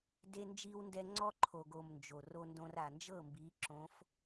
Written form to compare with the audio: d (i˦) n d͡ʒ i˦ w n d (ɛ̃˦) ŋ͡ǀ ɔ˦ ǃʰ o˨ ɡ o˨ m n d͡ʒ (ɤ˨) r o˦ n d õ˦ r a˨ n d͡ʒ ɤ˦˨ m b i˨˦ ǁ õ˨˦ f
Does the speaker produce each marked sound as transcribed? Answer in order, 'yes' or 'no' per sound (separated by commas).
no, no, no